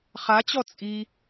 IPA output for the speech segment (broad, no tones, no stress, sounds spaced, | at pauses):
χ a t͡ɕ ɔ t͡sʼ i